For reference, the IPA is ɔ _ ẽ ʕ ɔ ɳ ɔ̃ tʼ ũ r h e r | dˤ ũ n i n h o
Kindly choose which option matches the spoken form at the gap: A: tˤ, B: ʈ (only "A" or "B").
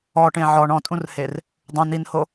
B